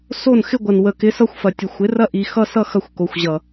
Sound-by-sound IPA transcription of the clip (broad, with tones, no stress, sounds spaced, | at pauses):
s o˦˨ n x ɪ˦ ɡʷ ɐ˨ n w ə˨ k ɪ˨˦ s ʌ˧ xʷ f ɐ˨ tʲ ə˨ xʷ ɪ˨˦ r ɐ˦ ʔ i˨ x ʌ˦ s ʌ˦ x ɐ˧ xʷ k o˨ xʷ ʑ ʌ˨